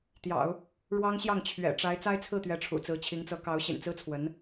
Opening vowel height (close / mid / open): open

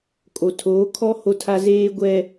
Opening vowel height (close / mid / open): mid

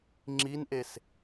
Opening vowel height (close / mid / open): close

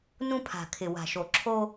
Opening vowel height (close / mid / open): close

